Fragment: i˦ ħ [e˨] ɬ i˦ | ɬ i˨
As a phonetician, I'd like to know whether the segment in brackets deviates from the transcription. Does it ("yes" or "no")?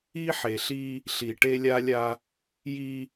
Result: no